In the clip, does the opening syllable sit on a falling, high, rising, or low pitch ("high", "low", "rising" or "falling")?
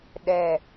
falling